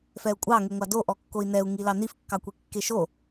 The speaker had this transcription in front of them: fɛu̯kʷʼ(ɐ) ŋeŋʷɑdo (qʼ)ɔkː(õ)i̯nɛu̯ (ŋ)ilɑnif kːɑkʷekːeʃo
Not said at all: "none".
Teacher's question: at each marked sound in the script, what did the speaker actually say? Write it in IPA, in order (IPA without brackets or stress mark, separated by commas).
ɑ, ʔ, o, ŋ